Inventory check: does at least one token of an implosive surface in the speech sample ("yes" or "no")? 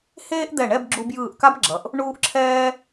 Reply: no